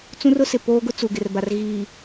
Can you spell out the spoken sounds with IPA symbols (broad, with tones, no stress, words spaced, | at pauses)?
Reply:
t͡sũ˦rʊ˦sɪ˨ poː˦ɡʊ˦ t͡su˨ɡɪ˨r ba˨r ɣiː˨